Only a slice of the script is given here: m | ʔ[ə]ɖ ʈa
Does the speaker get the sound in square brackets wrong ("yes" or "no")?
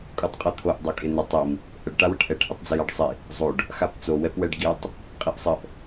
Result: no